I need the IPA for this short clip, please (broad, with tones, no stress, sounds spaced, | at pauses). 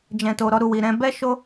d͡ʒ ɛ̃˨ t o˨ ɾ ɔ˧ ɾ u˨ w i˨ ɾ ɛ̃˧ b ɛ˦ ʃ o˦